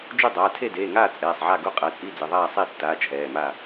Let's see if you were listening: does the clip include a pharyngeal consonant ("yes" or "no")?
yes